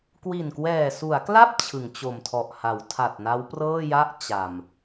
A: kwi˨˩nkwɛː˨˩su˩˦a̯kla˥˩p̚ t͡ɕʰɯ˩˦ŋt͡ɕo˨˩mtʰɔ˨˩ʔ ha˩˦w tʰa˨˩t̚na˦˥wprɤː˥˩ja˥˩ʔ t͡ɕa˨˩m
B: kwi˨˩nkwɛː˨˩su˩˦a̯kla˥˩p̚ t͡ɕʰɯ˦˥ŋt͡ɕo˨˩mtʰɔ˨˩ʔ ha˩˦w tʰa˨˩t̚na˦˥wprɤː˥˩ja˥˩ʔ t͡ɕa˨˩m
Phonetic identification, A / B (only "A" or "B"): A